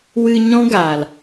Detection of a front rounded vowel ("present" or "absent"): absent